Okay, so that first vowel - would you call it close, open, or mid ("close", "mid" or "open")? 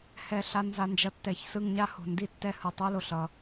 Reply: mid